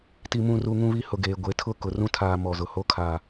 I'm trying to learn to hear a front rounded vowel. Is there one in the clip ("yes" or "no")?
no